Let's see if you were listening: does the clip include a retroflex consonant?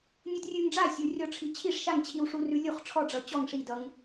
yes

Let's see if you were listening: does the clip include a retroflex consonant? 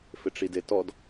yes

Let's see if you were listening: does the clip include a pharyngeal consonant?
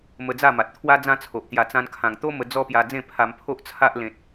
no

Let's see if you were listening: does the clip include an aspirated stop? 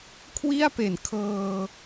yes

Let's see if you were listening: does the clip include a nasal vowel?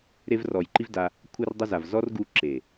no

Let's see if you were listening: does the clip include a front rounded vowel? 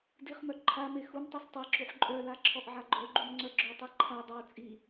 yes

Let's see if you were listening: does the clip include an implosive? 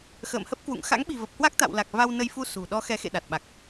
yes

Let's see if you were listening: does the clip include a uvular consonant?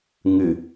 no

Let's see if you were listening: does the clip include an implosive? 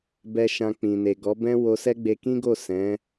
no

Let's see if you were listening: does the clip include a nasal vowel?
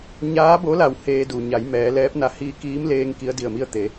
no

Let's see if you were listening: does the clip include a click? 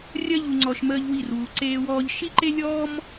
yes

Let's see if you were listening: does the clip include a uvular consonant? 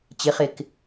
yes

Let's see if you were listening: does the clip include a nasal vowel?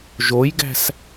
no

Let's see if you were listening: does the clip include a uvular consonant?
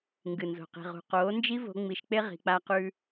yes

